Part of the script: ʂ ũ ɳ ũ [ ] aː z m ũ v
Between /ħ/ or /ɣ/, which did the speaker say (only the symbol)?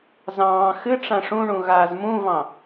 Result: ɣ